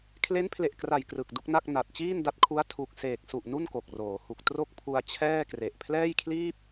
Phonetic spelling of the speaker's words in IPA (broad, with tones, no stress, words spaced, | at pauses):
kʰle˦˥npʰle˨˩ʔkra˨˩j krɯ˨˩k̚du˥˩k̚na˥˩k̚ na˨˩t̚ t͡ɕiː˥˩nda˦˥t̚kʰu˦˥a̯ tʰu˨˩k̚ seː˨˩k̚su˨˩ʔ nu˥˩nko˨˩k̚roː˩˦hu˨˩k̚ tro˥˩k̚pʰu˧a̯ t͡ɕʰɛː˥˩kre˨˩ʔ pʰlɛː˥˩jkʰliː˥˩p̚